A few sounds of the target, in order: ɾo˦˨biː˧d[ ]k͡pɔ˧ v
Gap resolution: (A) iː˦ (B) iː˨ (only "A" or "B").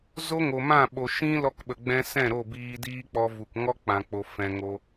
A